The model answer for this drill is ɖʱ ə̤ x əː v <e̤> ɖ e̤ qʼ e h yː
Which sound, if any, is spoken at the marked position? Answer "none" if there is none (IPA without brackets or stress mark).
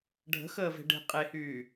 e̤